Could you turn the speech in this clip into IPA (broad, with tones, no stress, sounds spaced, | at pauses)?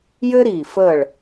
j ɘ˥ ɾ iː˧˩ f ə˧˩ ɭ